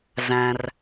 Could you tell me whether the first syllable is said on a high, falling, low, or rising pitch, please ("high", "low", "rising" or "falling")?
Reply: low